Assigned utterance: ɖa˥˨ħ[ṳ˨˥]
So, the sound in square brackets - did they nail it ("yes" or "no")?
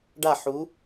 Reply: no